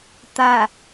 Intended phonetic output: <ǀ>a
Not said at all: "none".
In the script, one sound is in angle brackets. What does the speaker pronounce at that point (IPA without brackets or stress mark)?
t̪